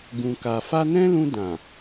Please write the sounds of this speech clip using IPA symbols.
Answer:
ɡ ũ˨ k a˨ f a˧ n ɛ̃˦ l ũ˧ d ã˨

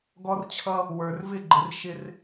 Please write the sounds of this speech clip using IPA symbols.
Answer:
ɡ ɔ˥ r t͡ɕʰ ʌ˥ | w ə˞˧ r v ɪ˥˧ ɡ͡ǃ ɪ˧ r ʃ ɪ˧ r

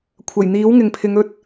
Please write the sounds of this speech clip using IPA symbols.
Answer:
kʷʰ ɐ˨˩ j n̪ iː˨˥ w ŋ ɪ˨ ŋ pʰ ɪ˨˧ ŋ ɵ˧ t̚

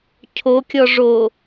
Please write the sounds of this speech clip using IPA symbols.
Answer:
cʰ o kʲ ɔ ʐ o

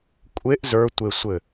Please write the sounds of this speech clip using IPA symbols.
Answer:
kʷʼ e ʔ z ə˞ tʷ e sʷ ɘ

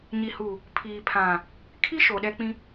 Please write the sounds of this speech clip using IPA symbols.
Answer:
ɲ i˨ h u˨ | pʰ iː˨ pʰ ã˨ | kʰ i˦ ʃ o˨ ɗ ɛ˦ k͡p ĩ˦

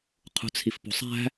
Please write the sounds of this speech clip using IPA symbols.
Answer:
qʰ ṳ t͡sʰ i f p ṳ sˤ æ̤

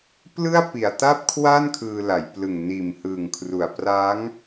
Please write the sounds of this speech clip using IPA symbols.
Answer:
p l ɯ˥˩ a̯ p i˨˩ a̯ t a˥˩ p̚ kʰ w a˥˩ n kʰ ɯː˧ l a˩˦ j p l ɯ˨˩ ŋ n iː˨˩ m h ɯː˨˩ ŋ kʰ r u˨˩ a̯ p r a˦˥ ŋ

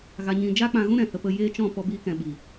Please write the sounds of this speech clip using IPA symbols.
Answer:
ɣ a˧ ɲ ĩ˧ d͡ʒ aː˦ k͡p ã˧ ɣ ũ˦ ɾ ɛ̃˨ h ə˧ p ə˧ j eː˦ t͡ʃ ɔ̃˦˨ p ɔ˦ b i˦ k ɛ̃˧ ɓ i˨

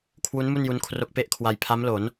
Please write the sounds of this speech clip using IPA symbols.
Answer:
kʰ w u˦˥ n m u˥˩ n j u˧ n kʰ r o˦˥ k̚ p e˦˥ ʔ kʰ w a˧ j pʰ a˦˥ m l o˩˦ n

